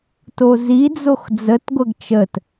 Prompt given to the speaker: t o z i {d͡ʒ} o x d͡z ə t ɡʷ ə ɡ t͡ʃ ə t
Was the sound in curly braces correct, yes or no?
no